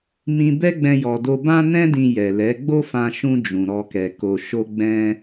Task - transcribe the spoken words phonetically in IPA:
mĩ˧bɛ˦ɡ͡bɛ̃˧ jɔ˨do˧ bã˧nɛ̃˧dĩ˨ jɛ˨lɛ˨˦ ɡ͡bo˦fã˧ʃũ˧ d͡ʒũ˨ɾɔ˧kɛ˨ ko˨ ʃo˧ ɡ͡bɛ̃˦

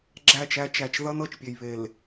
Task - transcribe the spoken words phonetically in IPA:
ɡ͡ǁæ˦˨t͡ʃæ˦ t͡ʃæ˨t͡ʃðʌ˦n ɤ˦˨t͡ʃpʲe˨j βe˨l

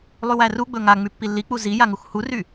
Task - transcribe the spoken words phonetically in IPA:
lˠywæruɡ͡bɵ ŋa ŋ͡mypːilːik͡pu zija ŋuxhury

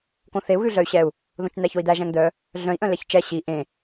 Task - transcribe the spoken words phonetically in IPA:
kõθeu̯ɣʉ ɮœy̯ɕɛu̯ | ðõt͡ʃn̪æçoi̯d̪æ ʒæ̃ŋd̪œ | ɮœ̃i̯ʔœ̃ lɛçt͡ʃɛ ɕi ʔẽ

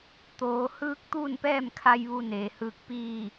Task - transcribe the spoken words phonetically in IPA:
t̪oː˩˧ hɯː˧˥k̚t̪uː˥˨npɛː˥˨mkʰa˧j ʋu˧neː˩hɯː˧k̚ piː˥˨

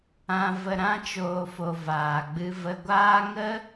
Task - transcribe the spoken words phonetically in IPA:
ã˧ və˧ ɾã˦ t͡ʃoː˧fo˧ vaː˨ɡ͡bɨ˧ və˧ɡʷaː˦ ŋə˦

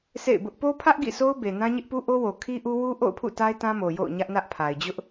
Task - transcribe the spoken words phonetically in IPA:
sḛ˦˨ɪ̯bʊ˦ʔ po˦pʰä˦ʔ ɡḭ˦˨so˦ʊ̯be˨ nã˦ɲɪ˦ʔpu˦ ʔo˦wo˨ kʰi˦ʔu˦wu˦ ʔo̰˦˨ʊ̯pʰṵ˦˨ ta˦ɪ̯tã˦mo˨ jo̰˦˨ʊ̯ɲä˦ʔnä˦ʔpʰa˨ɪ̯ d͡ʑʊ˦ʔ

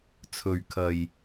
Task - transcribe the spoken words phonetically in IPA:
t͡sʰɵ˨ɥkʰɐ˨j

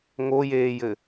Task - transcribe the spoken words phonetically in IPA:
ŋojeːjɘ

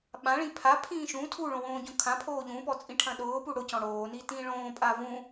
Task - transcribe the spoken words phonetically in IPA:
ɓãɭĩ pʰapʰĩː ʃũ tʰuɭõwõːɟõ kʰãpʰoː ʎũpɔt͡sʼĩʈʰɐ̃ ɗʊːpu ɽʊcɔ̃ ɽoːnitĩː ɭõːpʼa vũ

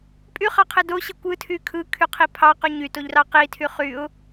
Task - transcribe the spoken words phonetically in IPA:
pʼyχɑqʰe doɕe kʷɯtʰy kʰɯkʰyqʰi pʰɑqy ɲytoʎrɑ qitʰy χyʊ̯

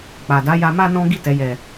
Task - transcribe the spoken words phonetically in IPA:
k͡pa˨da˨˦ja˧ ma˧ nɔ̃˦ ɡi˦˨tɛ˨˦jɛ˧

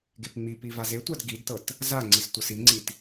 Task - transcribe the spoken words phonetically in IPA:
ɡepŋ͡mipi vazetʷad ɡidtɤt | zaŋ͡ǀis tʷɤsiŋ͡ǀit

